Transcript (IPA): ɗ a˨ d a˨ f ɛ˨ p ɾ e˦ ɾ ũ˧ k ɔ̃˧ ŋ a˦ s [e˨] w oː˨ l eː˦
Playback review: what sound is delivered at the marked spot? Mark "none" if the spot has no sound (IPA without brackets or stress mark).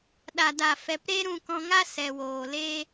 ɛ˨